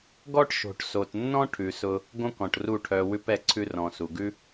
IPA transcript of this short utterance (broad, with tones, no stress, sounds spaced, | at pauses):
ɡ ɔ˦ ʈ ʃ o̤˨ ʈ s o˨ t nː ɔ̃˦ ʈʰ ʉ˨ s ʊ˧ | ɡ õ˦ k ɔ̃˨ ʈ r u˦˨ ʈʰ œ˧ w ʉ˧ p ɛ˨ ǀʰ ʉ˧ r ɔ̃˨ s u˨ ɡ ʉ˦